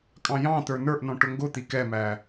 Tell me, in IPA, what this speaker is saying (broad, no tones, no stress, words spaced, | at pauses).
kʼɑ̃jɑ̃t̪ə˞ nə˞ʔnɔ̃ ʈʊŋɡʊt̪i kɛmæ